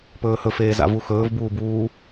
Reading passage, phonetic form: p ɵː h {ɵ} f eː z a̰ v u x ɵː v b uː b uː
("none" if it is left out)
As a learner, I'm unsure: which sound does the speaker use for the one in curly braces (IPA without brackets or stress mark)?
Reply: ɵ